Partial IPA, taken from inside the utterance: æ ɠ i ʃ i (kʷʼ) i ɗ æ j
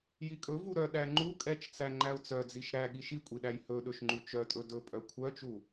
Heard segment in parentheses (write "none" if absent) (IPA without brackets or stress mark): kʷʼ